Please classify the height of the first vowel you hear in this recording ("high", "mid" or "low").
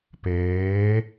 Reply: mid